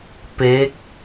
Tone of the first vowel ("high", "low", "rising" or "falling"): rising